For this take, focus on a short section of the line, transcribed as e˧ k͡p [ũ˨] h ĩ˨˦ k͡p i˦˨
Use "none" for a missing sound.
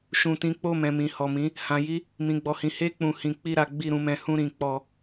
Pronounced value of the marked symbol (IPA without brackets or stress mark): ũ˨